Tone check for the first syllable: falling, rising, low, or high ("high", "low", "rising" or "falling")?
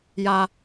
low